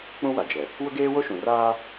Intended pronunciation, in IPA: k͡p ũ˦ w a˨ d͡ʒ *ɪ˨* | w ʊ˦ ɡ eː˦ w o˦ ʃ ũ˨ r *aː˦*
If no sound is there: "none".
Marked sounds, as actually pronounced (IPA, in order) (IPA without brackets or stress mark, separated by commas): ɛ˨, aː˦